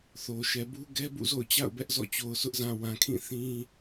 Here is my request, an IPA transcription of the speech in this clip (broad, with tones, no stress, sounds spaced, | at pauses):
θ o˨ ʃ ɛ˨ b u˦ ɡ ɛ˦ b ṵ˦˨ z o̰˦˨ ʊ̯ t͡ɕ a̰˦˨ ʊ̯ b ɛ˦ ʔ z ɔ̰˦˨ t͡ɕ o˨ ʊ̯ s ʊ˦ ʔ z ã˨ w ã˨ kʰ ĩ˦˨ θ ĩ˦